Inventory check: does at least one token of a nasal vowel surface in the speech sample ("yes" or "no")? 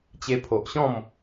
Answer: yes